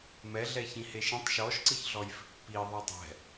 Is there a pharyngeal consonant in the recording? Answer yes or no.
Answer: no